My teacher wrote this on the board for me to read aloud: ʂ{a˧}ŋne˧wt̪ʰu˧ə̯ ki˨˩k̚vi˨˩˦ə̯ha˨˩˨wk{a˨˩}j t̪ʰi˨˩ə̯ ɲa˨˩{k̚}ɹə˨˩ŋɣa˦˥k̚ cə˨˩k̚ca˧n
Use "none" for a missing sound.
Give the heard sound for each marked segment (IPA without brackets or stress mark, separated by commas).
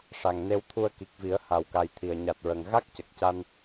a˨˩, a˨˩, t̚